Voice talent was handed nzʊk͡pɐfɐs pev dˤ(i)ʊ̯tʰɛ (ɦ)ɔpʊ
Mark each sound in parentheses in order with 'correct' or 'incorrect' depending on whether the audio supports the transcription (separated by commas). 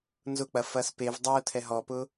incorrect, correct